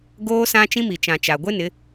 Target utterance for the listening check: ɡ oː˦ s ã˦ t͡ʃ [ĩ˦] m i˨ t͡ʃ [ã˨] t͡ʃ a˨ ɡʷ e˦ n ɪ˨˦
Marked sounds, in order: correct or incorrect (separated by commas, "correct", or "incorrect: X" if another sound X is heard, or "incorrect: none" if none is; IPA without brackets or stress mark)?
correct, correct